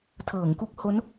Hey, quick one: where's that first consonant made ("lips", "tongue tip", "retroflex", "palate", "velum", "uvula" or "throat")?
tongue tip